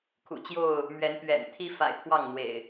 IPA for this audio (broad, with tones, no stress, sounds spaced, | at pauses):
kʰ ṵ˨˩ t͡ɕ j o˥˨ ʊ̯ | m ɥ ɛ˨˦ n p ɥ ɛ̰˨˩ n t̪ʰ i˦ f a̰˨˩ ɪ̯ t̪ʰ w ɑ˥˨ ŋ n̪ w ḛ˨˩ ɪ̯